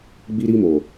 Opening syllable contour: high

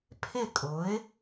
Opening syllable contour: falling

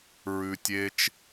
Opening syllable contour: high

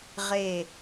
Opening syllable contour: falling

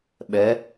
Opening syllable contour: rising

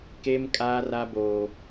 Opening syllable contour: high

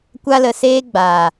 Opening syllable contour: high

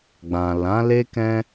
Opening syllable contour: low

